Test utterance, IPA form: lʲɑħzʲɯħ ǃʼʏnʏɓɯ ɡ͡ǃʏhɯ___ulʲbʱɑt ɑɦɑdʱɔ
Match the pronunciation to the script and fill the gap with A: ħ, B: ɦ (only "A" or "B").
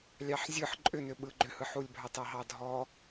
A